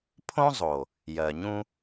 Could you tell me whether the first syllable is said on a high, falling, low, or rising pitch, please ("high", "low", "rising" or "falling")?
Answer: high